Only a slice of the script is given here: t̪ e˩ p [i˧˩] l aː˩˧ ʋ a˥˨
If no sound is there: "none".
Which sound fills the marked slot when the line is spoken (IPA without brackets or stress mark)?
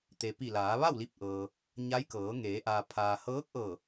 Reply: i˧˩